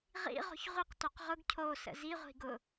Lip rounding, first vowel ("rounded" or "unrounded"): unrounded